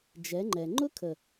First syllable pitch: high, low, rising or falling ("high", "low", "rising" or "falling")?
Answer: rising